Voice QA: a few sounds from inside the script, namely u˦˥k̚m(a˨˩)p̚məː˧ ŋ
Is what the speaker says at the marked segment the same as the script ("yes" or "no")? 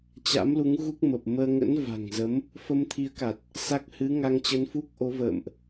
no